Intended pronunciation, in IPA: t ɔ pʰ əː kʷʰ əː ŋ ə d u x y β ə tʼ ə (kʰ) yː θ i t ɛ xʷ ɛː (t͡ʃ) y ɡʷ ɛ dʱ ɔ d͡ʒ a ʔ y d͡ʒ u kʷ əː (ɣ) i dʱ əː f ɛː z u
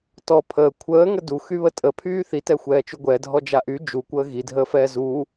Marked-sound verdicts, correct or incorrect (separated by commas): incorrect, correct, correct